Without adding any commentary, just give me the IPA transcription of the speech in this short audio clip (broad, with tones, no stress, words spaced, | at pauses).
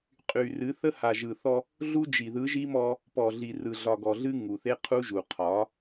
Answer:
qʼy˨rɨ˨˦θə˦ ha˨ʒɯ˨θɔ˦ | ɮu˦d͡ʒi˨ ðɯ˨˦ʒi˦mɔ˦ | pɔ˨ɮi˨rɯ˨ɮɒ˨ ɡɔ˨ɮɨ˦ ŋu˨θe˦qʰu˦ʒu˨ qʰɒ˨˦